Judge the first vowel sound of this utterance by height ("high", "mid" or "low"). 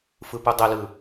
high